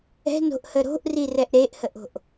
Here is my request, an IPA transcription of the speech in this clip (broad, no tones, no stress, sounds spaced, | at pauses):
ɛ̤ n o̤ ʔ h ə ɾ o̤ ʔ r i r ɛ ʔ ɾ e ʔ h ə ʔ o̤ ʔ